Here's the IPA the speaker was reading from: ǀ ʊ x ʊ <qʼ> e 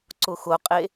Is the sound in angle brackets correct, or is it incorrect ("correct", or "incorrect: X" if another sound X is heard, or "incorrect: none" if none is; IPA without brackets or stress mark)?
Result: correct